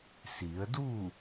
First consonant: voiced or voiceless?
voiceless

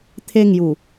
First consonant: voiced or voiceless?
voiceless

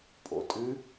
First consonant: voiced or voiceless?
voiceless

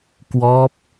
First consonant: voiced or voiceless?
voiceless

